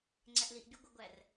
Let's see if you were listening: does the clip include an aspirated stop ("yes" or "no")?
no